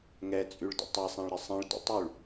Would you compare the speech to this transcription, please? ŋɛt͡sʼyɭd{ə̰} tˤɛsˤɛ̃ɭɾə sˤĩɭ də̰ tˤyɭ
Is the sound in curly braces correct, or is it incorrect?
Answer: correct